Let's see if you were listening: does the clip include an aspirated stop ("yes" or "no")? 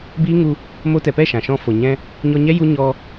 no